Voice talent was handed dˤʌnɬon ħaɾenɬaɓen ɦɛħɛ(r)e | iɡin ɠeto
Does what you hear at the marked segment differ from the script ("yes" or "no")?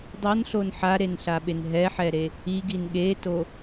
yes